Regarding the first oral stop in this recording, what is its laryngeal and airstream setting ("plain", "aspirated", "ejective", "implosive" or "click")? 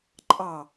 click